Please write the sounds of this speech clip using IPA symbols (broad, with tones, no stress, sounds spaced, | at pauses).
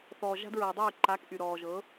θ ɔː˨ ʒ a̤˦ d ɹ ɤː˨ dˤ yː˦˨ ǃ a˨˦ k ʔ y˨ ɾ ɔː˨ ʒ ɤ˨˦